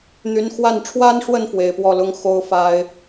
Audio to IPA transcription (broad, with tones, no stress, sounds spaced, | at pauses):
n̪ y˧˥ n x w a˥˩ n ʈ͡ʂʰ w a˥ n ʂ w ə˥˩ n f w e˨˩ ɪ̯ p w ɔ˥˩ l ʊ˥ ŋ x o˥ ʊ̯ f a˥ ɪ̯